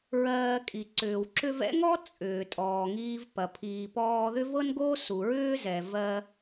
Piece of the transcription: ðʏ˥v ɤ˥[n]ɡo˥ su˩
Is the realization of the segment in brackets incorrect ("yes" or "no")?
no